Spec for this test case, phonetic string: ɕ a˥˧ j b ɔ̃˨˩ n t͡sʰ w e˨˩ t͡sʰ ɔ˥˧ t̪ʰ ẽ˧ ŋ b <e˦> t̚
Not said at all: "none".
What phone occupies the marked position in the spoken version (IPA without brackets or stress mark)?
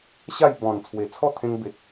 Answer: e˨